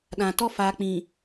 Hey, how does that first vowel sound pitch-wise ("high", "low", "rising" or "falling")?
low